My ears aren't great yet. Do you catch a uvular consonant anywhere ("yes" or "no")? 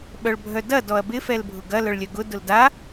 no